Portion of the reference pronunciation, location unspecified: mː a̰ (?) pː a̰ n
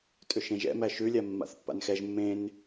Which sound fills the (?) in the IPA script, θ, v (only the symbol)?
θ